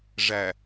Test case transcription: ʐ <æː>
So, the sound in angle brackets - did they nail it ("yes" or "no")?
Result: no